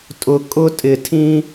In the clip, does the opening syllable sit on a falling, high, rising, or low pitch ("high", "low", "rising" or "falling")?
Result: low